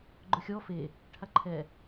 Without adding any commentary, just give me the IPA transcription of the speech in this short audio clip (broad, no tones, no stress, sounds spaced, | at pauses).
ɡ͡ǃ ʊ xʲ ɔ f e | ʈʰ a ǃʰ ɛ